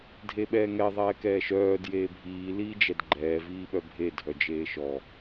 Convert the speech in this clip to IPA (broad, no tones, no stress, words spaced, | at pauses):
dʱeɓɛːŋɛ ðˤɛːkɛːʃœː djeːbʱiː liːd͡ʒɛdɡ͡ǃɛː viːɓœbʱe dʱœd͡ʒeːʃɔ